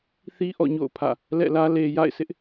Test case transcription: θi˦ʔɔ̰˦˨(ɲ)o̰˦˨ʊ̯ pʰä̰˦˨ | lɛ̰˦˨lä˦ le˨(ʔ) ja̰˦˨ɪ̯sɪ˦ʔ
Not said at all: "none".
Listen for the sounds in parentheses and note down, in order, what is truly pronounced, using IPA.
ɲ, none

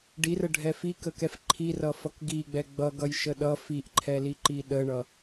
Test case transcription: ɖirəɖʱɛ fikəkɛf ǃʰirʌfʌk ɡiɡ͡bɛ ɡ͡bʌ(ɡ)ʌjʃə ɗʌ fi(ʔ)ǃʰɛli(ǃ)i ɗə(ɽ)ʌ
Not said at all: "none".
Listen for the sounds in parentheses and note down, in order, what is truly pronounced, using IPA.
ɡ, ʔ, ǃ, ɳ

